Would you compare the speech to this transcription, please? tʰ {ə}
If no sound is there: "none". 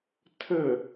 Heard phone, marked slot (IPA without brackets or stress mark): ə